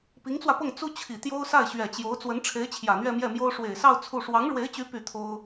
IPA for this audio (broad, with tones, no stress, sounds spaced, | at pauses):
p i˧˥ ŋ t͡s w ä˧ p ɤ˥˩ ŋ t͡s u˥ t͡ɕʰ i˨˩ t̪ j o˥ ʊ̯ s a˥˩ ɪ̯ ɕ ɥ ɛ˨˩ t͡ɕ j o˧˥ ʊ̯ t͡s w ə˧˥ n ʈ͡ʂʰ e˧˥ ɪ̯ t͡ɕʰ j ä˨˩ n̪ ɥ ɛ˥˧ m j ɛ˥˩ m j o˥ ʊ̯ ʂ w e˨˩ ɪ̯ s ɑ˥˧ ʊ̯ t͡sʰ u˥˩ ʂ w ɑ˧˥ ŋ ɻ w e˧˥ ɪ̯ t͡ɕ y˧˥ p y˥˩ t̪ʰ o˥ ʊ̯